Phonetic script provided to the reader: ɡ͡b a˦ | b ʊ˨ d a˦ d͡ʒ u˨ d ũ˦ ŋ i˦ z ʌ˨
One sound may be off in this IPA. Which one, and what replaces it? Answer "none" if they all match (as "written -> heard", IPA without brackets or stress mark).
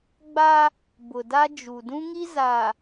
ʌ˨ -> a˨